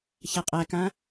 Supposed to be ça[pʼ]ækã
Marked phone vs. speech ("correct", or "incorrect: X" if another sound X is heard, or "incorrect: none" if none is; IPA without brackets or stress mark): incorrect: qʼ